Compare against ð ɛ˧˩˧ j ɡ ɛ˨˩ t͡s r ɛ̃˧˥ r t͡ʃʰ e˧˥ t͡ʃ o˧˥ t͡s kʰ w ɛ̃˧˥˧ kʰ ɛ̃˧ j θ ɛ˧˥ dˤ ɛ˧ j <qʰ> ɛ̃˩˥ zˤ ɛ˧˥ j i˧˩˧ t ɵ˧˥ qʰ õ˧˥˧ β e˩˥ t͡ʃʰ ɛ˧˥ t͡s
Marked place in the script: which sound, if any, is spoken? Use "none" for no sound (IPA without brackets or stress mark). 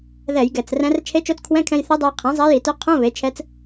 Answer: qʰ